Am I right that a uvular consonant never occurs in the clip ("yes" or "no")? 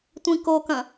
yes